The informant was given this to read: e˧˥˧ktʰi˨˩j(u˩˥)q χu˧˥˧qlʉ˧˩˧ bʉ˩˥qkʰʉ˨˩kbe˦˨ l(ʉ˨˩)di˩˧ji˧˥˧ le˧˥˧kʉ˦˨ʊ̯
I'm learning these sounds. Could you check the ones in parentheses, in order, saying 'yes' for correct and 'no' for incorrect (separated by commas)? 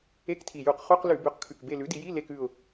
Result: no, no